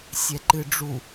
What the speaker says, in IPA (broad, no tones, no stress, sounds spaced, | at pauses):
sʲ ɛ ǃ ɨ ɖ͡ʐ u